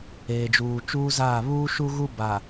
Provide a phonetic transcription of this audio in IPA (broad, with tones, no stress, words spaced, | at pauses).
eː˨d͡ʒuː˨ t͡ʃuː˦zaː˦˨ βuː˦ʃu˦ɣu˦ ba˨